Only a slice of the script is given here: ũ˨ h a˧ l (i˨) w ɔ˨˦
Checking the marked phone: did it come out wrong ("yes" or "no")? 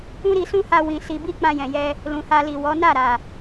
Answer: no